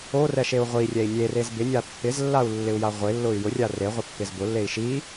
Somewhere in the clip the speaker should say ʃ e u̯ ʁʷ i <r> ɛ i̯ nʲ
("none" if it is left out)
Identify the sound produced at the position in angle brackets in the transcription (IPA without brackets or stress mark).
rʲ